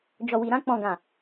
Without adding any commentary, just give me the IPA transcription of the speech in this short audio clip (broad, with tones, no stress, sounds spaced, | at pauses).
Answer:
d͡ʒ ɔ˨ w i˨ ɾ ã˧ k͡p ɔ̃˨ ɡ ã˨